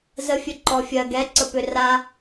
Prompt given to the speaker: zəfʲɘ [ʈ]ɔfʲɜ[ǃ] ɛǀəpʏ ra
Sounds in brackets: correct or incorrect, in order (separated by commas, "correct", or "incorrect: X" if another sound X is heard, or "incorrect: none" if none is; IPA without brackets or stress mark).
incorrect: ǃ, incorrect: ɡ